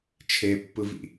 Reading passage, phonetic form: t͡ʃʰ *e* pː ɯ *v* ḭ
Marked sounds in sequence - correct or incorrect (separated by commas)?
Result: correct, correct